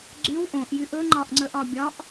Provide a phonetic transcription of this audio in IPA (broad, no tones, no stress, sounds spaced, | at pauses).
ɡ͡ǀ y w ʔ õ ʔ j y ʔ ɵ ŋ͡ǃ ɒ ʔ ŋ͡ǀ ə ʔ ɒ bʲ ɒ ʔ